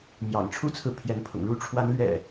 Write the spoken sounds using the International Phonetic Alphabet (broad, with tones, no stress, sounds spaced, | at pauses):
m j ɑ̰˨˩ ŋ ʈ͡ʂʰ u˦ t͡sʰ ɹ̩˨ pʰ j ɛ˨˦ n pʰ ʊ̰˨˩ ŋ ɻ u˥˨ ʈ͡ʂʰ w a˨˦ n l ɥ ɛ̰˨˩